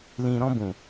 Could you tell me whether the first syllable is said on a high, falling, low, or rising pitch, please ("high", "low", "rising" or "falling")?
low